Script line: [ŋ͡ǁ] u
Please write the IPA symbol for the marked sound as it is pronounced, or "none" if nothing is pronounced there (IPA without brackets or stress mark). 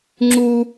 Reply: ŋ͡ǁ